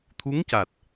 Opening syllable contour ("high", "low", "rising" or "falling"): rising